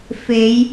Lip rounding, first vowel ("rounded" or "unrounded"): unrounded